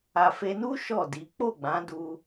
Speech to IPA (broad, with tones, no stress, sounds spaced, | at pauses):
a˨ f e˧ n u˦ ʃ ɔ˦˨ d i˨˦ k͡p o˦˨ ɡ͡b ã˨˦ d u˧